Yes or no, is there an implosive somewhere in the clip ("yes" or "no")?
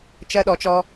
yes